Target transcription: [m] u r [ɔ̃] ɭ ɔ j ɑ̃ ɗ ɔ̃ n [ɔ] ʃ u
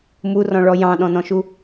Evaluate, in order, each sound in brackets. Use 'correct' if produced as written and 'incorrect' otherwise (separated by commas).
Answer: correct, correct, incorrect